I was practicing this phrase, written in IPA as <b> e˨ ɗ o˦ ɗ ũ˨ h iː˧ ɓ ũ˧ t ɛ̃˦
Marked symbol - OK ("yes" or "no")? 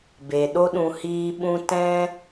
yes